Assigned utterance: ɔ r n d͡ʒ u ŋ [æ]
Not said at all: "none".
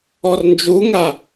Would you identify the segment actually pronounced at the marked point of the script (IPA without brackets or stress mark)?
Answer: a